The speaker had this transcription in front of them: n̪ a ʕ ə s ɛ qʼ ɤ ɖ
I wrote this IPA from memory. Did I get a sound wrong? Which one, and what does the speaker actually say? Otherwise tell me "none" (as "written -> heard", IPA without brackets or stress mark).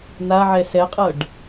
ə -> ɛ